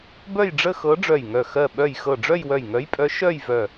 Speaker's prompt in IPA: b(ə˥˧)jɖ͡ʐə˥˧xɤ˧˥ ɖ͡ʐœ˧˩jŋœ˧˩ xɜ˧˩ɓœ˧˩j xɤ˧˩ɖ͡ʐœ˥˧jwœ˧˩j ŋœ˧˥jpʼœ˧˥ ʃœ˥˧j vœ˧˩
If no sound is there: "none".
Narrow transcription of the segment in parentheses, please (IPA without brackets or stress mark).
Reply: œ˥˧